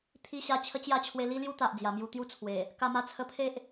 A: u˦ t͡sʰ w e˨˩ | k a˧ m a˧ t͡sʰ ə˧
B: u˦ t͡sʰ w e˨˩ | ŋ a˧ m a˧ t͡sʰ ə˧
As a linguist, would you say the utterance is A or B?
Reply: A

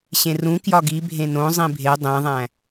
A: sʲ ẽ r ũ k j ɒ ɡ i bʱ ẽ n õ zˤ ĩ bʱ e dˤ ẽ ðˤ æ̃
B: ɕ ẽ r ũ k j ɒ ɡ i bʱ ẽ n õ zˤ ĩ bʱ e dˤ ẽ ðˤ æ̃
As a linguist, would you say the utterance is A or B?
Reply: B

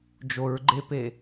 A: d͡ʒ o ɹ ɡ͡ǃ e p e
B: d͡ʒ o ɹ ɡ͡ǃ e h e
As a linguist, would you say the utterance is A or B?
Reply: A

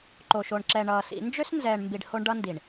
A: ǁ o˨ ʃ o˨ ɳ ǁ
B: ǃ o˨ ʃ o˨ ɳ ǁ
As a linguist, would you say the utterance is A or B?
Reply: B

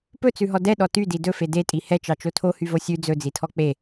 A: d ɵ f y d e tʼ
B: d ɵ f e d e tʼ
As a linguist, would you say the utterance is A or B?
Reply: B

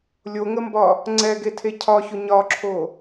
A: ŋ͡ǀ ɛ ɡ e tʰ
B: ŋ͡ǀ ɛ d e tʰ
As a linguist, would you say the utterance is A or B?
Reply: A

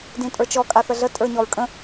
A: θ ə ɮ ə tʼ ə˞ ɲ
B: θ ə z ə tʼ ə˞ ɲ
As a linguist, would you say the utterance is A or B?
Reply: A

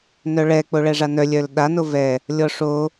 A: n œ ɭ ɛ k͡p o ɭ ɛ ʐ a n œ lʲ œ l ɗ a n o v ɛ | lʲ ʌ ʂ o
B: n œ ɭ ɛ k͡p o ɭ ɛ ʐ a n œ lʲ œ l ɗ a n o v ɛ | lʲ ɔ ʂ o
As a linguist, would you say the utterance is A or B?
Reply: B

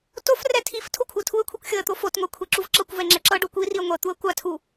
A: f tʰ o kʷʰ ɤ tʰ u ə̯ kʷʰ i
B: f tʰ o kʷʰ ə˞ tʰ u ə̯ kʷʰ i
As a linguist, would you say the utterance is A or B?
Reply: A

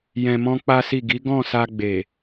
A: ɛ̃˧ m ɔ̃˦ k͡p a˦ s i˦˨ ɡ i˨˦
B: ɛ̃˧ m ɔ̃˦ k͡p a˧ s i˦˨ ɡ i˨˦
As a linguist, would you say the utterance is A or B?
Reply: A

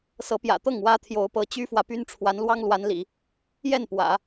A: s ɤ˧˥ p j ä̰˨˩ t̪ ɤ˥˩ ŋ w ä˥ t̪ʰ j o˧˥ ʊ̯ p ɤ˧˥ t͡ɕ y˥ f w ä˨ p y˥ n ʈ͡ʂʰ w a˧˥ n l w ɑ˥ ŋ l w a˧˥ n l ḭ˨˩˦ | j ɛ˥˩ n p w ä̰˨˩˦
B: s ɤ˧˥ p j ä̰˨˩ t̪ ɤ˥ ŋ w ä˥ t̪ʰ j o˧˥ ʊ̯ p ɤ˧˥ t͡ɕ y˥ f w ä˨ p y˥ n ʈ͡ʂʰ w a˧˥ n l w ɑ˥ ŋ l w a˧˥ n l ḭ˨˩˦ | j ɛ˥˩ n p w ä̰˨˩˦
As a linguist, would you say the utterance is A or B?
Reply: A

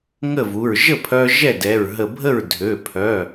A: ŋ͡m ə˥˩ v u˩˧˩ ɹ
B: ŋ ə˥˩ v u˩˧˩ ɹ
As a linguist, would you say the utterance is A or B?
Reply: B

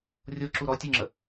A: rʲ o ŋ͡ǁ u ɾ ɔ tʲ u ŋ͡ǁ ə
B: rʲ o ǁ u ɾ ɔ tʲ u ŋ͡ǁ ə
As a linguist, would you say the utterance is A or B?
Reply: B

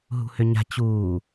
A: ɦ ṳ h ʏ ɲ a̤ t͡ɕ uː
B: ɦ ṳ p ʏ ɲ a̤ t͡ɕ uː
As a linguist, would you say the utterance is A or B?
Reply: A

